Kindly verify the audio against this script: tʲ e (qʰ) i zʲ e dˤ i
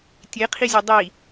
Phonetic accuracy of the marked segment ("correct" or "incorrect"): correct